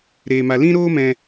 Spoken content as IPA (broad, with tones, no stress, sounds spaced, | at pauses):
ɾ eː˧ m a˧ l ĩ˦ ɾ oː˦ m ɛ̃˧